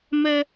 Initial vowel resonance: oral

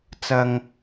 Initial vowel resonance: oral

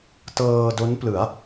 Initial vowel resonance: oral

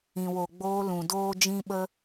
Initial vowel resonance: nasal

